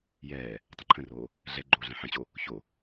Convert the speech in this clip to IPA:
jɛː | tˤə̃ǃʰə̃roː | ɮɛɡ͡ǃoː ɮɛ̃ħə̃t͡ɕo | ço

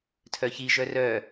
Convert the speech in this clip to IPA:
tʰœçi ʒœrœ

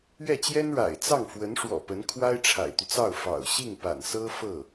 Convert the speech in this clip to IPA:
ɥɛ˥˩t͡ɕjɛ˥nɻa̰˨˩ɪ̯ t͡sɑ˥˩ŋfwə˧˥nʂwɔ̰˨˩ pə˧˥n kʰwa˥ɪ̯ʈ͡ʂʰa̰˨˩ɪ̯t̪y˦t͡sɑ˥˩ʊ̯ fɑ̰˨˩ʊ̯ ɕi˥˩ŋpa̰˨˩nsɤ˥ fɤ˥˩

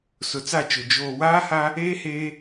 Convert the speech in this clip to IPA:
sʊ˨t͡sa˦˨t͡ʃʊ˨ d͡ʒoː˨waː˦ha˦ | eː˦heː˦

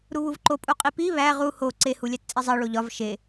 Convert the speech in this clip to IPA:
ɾuβuvǃopʼu qʼipi βæ ʁu ho ǀehulʲæt t͡sʼizˤi ɭoʎɒv ʃe

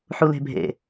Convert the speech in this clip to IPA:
ħule̤bʱḛ

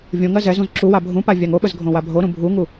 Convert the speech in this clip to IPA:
vʲõŋɜ zɛ zũzǁuwa bʱũpa vʲaŋoɓəz ɡʱõwabʱoɾũ bʱuŋu

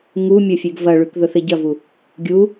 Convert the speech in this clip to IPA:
ŋumʲɵ fʲʉɡvɐɭʉk ðɵθeɟɐvu | ɡʲu

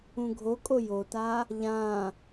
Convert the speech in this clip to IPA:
ũɡʱokʼo jota | ʎã

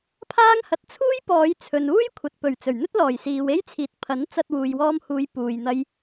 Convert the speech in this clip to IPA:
pʰaː˥ŋhɐ˨˥t̚ t͡sʰuː˥jpɔː˨˧jt͡sʰɵ˨nuː˥j kʷʰɐ˨t̚pɵ˨˩ɥ t͡sɵ˨˩ɥn̪ɵ˥t̚lɔː˨˩jsiː˨w e˥jt͡sʰiː˨˥t̚pʰɐ˨˥n t͡sɐ˧t̚ wuː˨jwɔː˧mhuː˨˧j puː˨jn̪ɐ˧j

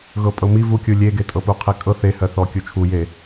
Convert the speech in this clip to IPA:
ɣɤpʼɤmi vukʲu lʲeɡe tʼɤpuqʰekʼɤ θehɜθɔ kʲut͡ʃʰuje

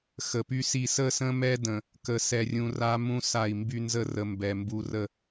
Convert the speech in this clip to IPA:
xə˨py˦si˦˨ sə˦˨sə̃˦mɛ˦də̃˨ | kə˨sɛ˨rʲũ˨ ra˦mũ˦ sa˦˨i̯ mby˦nzə˦rə˨ mbɛ˨ mbu˨rə˦˨

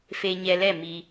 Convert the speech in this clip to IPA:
fe˧ ɲɛ˧lɛ˦˨ mi˧

